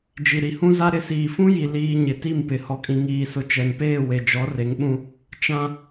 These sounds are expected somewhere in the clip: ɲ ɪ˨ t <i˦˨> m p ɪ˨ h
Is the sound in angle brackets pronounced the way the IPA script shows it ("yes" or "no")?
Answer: yes